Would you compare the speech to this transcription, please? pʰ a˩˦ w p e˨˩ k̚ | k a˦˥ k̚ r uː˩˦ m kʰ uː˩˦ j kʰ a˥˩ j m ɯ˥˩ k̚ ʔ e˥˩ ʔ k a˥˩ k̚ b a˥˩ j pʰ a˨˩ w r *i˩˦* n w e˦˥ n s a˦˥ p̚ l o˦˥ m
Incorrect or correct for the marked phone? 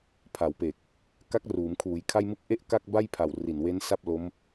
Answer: incorrect: i˨˩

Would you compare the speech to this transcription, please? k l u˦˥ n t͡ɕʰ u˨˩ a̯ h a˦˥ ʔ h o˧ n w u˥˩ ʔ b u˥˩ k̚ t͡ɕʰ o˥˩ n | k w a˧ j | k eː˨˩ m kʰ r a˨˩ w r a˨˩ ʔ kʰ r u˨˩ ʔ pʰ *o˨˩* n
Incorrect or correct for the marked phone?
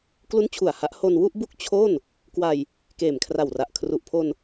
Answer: incorrect: o˧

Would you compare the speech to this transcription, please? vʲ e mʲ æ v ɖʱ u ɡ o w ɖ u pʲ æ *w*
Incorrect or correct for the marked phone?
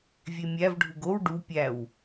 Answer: correct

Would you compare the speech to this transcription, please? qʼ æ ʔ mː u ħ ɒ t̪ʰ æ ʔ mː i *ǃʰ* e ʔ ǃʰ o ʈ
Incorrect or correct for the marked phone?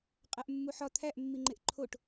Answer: incorrect: ŋ͡ǃ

